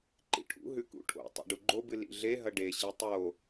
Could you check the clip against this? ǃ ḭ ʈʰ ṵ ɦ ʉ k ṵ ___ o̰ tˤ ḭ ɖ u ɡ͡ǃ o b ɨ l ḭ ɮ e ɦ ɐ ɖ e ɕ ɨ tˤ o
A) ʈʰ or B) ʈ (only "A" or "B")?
A